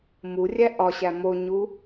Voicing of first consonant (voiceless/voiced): voiced